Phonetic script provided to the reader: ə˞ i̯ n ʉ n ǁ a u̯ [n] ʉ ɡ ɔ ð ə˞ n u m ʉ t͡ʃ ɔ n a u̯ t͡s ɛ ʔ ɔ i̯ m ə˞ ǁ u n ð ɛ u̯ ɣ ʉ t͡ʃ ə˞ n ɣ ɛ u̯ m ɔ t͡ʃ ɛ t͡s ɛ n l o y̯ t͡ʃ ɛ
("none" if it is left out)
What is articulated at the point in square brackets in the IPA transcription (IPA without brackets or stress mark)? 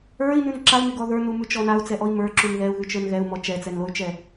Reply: n